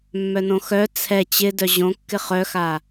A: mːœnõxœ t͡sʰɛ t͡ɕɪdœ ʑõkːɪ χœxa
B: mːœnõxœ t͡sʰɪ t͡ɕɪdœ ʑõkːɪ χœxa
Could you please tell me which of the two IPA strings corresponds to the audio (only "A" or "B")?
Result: A